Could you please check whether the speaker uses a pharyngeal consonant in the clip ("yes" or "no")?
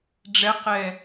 no